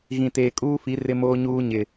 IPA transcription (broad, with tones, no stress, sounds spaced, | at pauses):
ɣ ĩ˨ t eː˨ kʼ uː˦ f i˨˦ r ɪ˦ m oː˦ ɲ uː˦ ɲ ɪ˨